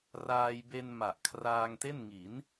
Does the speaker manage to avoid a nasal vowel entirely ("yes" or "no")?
yes